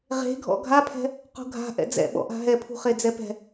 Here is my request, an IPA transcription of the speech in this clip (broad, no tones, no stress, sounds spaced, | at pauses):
ʁ e̤ ɡʱ ɔ̰ ɡʱ a pʰ ɛ̤ | q ṳ ɡʱ a̤ ʔ ɛ̰ d͡z ɛ̰ ɓ ɔ̰ ʔ a̤ ɦ ɛ pʰ ṳ χ e d͡z ɛ p ɛ̤